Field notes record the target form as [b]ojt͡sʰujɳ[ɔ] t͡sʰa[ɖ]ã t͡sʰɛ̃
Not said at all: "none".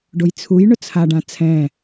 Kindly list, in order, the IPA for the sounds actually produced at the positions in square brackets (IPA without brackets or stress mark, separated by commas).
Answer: ɖ, ʊ, ɖ